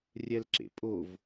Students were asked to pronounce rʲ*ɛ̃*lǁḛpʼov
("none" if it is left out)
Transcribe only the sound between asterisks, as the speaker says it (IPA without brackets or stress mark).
ɛ